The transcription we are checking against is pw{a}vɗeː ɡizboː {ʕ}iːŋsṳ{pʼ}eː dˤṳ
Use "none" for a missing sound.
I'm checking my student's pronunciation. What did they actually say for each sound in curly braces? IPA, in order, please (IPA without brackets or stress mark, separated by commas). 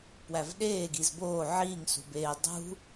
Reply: æ, ʕ, b